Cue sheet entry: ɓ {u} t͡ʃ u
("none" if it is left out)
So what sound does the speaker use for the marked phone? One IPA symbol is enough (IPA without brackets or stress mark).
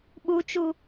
u